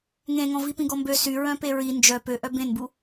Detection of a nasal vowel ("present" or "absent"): present